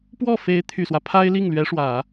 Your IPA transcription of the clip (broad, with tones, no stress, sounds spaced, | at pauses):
p w ɔ˥˩ f e˧˥ ɪ̯ t̪ʰ y˨˩ s w ä˦ pʰ a˥ ɪ̯ l i˥˩ ŋ l ɥ ɛ˧˥ ʂ w ä˨˩˦